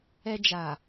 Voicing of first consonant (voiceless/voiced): voiced